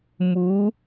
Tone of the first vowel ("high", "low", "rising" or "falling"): rising